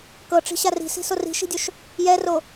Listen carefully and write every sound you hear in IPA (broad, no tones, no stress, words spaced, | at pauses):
kɤʈ͡ʂi̤ ɕari̤si̤ sori̤ʃi̤dʲoʃ | jɛro